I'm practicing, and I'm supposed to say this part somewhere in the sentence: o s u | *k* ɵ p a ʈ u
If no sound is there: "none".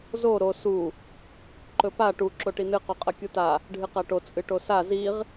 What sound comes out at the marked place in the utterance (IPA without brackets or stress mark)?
ǃ